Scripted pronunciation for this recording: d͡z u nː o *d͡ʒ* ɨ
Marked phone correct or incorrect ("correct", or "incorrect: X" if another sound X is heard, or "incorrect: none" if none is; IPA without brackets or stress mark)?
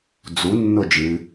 correct